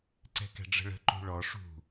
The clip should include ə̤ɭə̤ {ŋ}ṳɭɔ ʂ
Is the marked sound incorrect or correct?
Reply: incorrect